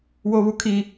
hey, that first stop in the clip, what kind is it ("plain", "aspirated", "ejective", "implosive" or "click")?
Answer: aspirated